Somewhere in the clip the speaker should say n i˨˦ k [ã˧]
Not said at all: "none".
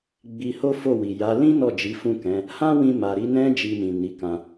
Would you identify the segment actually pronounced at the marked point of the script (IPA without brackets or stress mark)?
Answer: ã˧